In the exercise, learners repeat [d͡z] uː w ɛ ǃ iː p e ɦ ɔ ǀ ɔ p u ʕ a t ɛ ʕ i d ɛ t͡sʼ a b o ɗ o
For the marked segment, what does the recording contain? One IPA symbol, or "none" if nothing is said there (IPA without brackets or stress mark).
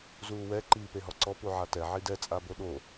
z